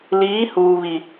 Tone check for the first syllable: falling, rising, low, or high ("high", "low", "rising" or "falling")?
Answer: rising